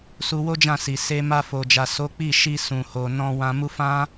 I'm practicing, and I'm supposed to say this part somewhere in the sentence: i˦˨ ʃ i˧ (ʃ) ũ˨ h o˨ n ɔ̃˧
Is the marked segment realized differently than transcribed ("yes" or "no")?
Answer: yes